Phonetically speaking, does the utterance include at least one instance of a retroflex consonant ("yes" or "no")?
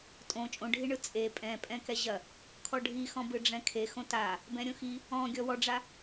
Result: yes